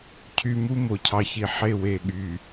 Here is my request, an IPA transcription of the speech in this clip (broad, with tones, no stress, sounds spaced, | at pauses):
cʰ y˨ m u˦ m o˨ cʰ ɑ˨ ç i˨ ħ e˦˨ w e˨ ɠ y˨